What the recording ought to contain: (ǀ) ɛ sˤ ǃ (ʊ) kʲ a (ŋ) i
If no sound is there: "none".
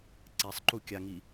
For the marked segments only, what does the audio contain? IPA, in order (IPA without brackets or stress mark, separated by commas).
ǀ, u, ŋ